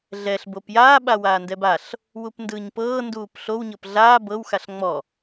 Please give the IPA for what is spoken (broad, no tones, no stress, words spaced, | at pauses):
ɮɛɬ bopjaː ɓawaːndɛbaɬ | wupndɯːɲpɤː nduːpɬow ɲɤpɮaː bɤw xaɬŋ͡mɔ